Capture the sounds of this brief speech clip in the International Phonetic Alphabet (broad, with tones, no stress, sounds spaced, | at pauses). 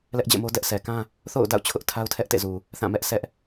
l ɛ˦ ʔ d͡ʑ ɛ̰˦˨ m o˦ d ɛ˦ ʔ sʰ ɛ˨ k ã˦ | θ o̰˦˨ ʊ̯ d a̰˦˨ ʊ̯ t͡ɕʰ ʊ˦ ʔ tʰ a˦ ʊ̯ tʰ ɛ˦ ʔ t ḛ˦˨ z u˨ | θ ã˦˨ m ɛ˦ ʔ sʰ ɛ˦ ʔ